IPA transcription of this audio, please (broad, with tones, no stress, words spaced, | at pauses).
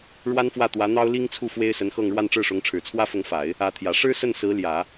ɻwa˥nfwä˥˩t̪wä˧˥ n̪ɑ˥ʊ̯li˥ŋt͡sʰu˥˩ fwe˥ɪ̯sə˧˥nxɤ˥˧ŋ ɻwa˥˧nʈ͡ʂɻ̩˥˩ʂʊ˧˥ŋ ʈ͡ʂʰɻ̩˨˩t͡sʰwä˥fʊ˧˥ŋfa˨˩˦ɪ̯ | ä˧˥t̪ʰjä˨˩ ʂɻ̩˥sə˥˩n sɹ̩˧˥ljä˨˩˦